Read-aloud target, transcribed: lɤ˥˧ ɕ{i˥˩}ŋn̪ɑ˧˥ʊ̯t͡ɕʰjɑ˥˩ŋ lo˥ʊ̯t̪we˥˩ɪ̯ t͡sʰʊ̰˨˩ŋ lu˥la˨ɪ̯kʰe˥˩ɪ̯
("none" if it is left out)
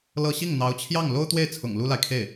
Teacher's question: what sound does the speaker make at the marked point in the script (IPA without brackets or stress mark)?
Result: i˥˩